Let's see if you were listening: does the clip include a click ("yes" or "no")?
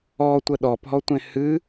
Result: no